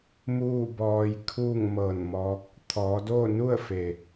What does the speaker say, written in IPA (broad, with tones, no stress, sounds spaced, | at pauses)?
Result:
m uː˥˨ b ɔː˧ j kʰ uː˥˨ ŋ m ɤː˧˩ n m ɔː˧˥ k̚ | t̪ʰ ɔː˩˧ d oː˥˨ n u˥˨ ə̯ f e˩